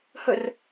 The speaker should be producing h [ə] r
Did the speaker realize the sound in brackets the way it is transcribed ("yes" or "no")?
yes